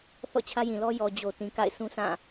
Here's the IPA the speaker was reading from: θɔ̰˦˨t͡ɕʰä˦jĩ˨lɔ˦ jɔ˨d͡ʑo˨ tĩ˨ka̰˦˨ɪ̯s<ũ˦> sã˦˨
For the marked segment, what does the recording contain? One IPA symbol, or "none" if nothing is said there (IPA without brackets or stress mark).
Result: ũ˦